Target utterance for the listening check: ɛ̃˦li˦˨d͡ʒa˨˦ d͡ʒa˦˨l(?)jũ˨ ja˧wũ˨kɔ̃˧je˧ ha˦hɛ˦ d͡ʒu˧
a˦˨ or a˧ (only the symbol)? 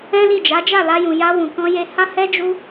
a˧